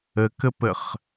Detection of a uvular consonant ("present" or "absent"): present